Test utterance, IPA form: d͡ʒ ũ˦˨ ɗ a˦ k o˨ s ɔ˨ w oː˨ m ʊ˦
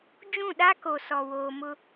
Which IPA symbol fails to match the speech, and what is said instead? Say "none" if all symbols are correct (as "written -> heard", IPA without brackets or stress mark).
none